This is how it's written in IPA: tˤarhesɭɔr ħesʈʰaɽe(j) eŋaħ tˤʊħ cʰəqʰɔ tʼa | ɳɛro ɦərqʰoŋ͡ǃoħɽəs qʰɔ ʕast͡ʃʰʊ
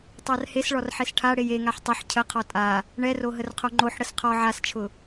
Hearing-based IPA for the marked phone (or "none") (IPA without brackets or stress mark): j